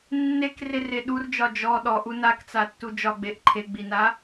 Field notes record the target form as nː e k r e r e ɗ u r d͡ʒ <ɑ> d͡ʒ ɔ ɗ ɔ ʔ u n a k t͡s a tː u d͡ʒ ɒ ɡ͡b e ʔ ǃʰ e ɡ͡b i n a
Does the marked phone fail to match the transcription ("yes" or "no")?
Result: yes